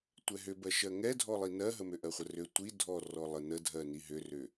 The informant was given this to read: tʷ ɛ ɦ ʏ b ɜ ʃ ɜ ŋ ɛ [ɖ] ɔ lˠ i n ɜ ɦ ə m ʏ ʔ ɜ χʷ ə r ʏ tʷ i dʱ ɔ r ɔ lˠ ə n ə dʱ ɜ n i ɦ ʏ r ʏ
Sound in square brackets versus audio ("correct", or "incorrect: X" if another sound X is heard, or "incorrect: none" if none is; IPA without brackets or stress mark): incorrect: dʱ